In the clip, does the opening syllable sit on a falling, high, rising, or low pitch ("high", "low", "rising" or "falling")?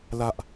high